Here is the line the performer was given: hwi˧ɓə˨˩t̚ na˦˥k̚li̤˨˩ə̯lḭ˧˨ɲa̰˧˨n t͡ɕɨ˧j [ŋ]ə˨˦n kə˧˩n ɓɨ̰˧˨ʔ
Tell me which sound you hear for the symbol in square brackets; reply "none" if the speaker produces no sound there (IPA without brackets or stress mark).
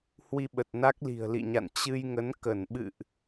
ŋ